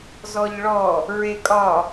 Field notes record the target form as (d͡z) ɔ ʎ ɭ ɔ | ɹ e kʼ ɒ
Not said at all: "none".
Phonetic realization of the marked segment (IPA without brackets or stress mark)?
z